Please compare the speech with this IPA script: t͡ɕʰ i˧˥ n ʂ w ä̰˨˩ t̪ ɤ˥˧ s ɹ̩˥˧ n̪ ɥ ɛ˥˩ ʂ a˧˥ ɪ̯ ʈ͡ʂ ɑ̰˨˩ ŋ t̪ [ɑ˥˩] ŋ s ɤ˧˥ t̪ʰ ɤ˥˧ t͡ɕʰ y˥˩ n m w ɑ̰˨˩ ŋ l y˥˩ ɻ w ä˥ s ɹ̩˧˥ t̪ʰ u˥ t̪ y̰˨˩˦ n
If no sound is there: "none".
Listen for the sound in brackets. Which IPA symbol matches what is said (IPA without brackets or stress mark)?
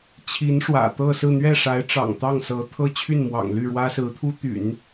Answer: ɑ˥˩